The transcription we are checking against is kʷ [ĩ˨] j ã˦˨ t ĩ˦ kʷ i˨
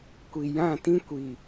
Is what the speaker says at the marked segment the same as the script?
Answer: no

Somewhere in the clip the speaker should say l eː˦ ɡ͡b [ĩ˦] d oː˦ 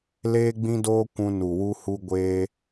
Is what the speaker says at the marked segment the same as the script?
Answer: yes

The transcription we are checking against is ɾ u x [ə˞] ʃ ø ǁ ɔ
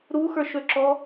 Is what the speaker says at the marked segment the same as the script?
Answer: yes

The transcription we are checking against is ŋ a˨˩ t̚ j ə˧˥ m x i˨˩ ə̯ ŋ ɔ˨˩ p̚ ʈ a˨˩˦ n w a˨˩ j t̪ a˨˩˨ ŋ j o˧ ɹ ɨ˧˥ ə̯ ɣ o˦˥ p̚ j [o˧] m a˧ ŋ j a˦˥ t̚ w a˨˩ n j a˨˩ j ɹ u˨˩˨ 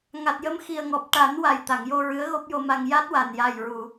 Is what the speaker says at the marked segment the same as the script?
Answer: yes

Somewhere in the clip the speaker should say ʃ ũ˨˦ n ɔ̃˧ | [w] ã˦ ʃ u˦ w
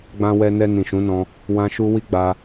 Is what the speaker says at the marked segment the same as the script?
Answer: yes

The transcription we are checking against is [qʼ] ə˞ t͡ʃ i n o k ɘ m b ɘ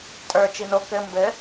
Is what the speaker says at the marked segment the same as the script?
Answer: no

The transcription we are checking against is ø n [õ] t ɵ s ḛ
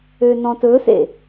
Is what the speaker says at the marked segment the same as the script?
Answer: no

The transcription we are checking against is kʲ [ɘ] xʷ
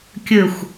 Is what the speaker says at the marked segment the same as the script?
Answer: yes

